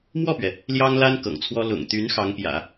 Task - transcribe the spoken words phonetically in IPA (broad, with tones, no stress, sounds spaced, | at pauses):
m w ɔ˥˩ p ɥ ɛ˩ | l j ɑ˥ ŋ l a˥ n k ɤ̰˨˩ ŋ t͡sʰ w ɔ˥ l ʊ̰˨˩ ŋ t̪ y˧˥ n x ɑ˧˥ ŋ p j ä̰˨˩˦